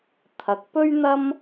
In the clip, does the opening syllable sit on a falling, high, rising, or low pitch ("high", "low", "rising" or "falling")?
rising